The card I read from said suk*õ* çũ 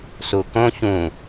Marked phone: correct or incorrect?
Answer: correct